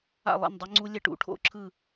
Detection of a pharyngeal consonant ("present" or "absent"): absent